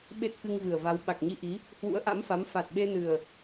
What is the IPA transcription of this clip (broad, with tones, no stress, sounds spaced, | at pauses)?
ɓ e˦˥ t̚ k ɨ˧ ŋ v ɨ˨˩ ə̯ v a˨˦ w ɓ a˨˩ k̚ ɲ i˧ ʔ i˨˦ | h w ṵ˧˥ ə̯ ʔ a̰˧˥ m f a˨˦ m f a˨˩ t̚ ɓ e˧ n ɨ˨˩ ə̯